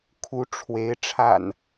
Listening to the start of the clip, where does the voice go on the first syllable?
rising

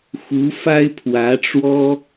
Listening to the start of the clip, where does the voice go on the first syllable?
rising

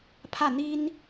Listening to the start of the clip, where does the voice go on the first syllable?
falling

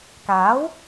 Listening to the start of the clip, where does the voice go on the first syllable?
rising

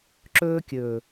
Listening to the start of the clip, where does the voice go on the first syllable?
high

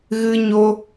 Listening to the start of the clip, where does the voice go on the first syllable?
high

